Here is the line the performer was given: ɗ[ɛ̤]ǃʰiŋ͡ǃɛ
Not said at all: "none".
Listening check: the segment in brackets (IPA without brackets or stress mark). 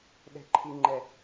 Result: ɛ̤